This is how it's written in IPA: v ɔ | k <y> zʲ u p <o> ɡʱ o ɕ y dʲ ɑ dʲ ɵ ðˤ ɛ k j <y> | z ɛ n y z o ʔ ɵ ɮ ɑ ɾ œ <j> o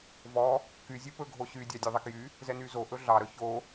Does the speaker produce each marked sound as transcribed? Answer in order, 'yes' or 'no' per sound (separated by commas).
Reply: yes, no, yes, no